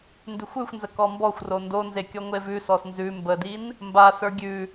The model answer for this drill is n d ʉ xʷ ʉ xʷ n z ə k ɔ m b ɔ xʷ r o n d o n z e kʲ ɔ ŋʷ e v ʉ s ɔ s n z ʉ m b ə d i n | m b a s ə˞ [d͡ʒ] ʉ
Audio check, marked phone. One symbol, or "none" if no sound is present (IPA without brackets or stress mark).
ɡʲ